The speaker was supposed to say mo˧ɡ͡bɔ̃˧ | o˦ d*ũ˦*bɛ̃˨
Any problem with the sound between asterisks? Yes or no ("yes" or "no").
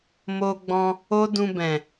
yes